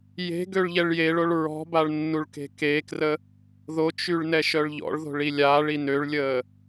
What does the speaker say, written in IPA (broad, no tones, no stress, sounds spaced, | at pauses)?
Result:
j e̤ ɡ ø ɭ ʎ ɛ ɭ j e ɭ o ɭ ɹ ɔ̤ b a ɭ nː u ɭ k e̤ k e k r ə | ð o t͡ʃ y ɭ n ɛ ʃ œ ɭ ʎ ɔ̰ ɭ ð o̤ ɭ i lʲ aː ɭ i n ø ɭ lʲ əː